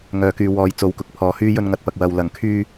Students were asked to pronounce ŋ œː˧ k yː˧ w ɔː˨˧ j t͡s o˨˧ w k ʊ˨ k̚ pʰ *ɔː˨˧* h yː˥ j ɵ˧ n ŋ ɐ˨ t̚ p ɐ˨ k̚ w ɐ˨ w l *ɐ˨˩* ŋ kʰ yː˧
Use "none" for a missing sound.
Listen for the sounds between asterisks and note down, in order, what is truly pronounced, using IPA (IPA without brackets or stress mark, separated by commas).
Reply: ɔː˨˧, ɐ˨˩